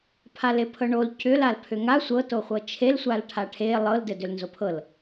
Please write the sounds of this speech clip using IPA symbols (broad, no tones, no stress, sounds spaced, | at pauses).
pʰ a l e pʰ ɤ ɳ o l c ʏ l a l pʰ ʏ ŋ a sʷ ɤ t o χʷ ɤ t͡ʃʰ e l sʷ a l ʈʰ a ʈʰ e lˠ ɤ l d ɘ d ʏ l n z o pʰ ɤ l